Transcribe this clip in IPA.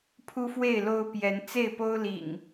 pʰ u˦ f w e˥˨ ɪ̯ l o˦ ʊ̯ p j ɛ˨˦ n t͡s e˥˨ ɪ̯ p o˦ ʊ̯ l ḭ˨˩ ŋ

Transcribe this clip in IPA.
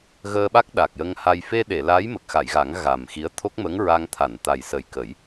ɣ əː˧ ɓ a˦˥ k̚ ɗ a˨˩ k̚ j ə˧ ŋ h a˧ j f e˧ ɗ e˨˩˨ l a˧˥ j m ə˨˩ k̚ x a˨˩˨ j ɣ a˨˩˦ ŋ ɣ a˨˩ m x i˧˥ ə̯ t̪ʰ o˦˥ k̚ m ə˧˥ ŋ ɹ a˧ ŋ t̪ʰ a˨˩˨ n t̪ a˨˩ j s ə˨˩ j k ə˨˩˦ j

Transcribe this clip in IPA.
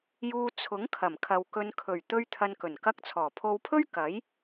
j uː˧ t͡sʰ ʊ˨˥ ŋ kʰ ɐ˨˩ m kʰ ɐ˨ w k ɵ˨˧ n kʰ ɵ˨˩ ɥ t̪ ɵ˧ ɥ t̪ʰ ɐ˧ n k ɵ˨˩ n k ɐ˧ k̚ t͡sʰ ɔː˨˩ pʰ o˧ w pʰ ɵ˥ ɥ k ɐ˨˥ j

